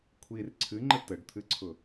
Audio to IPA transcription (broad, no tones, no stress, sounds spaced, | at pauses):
kʷʰ i r ǀʰ ɨ ŋ͡ǃ ə t ə ɖ t̪ʰ ɨ ǀʰ ʊ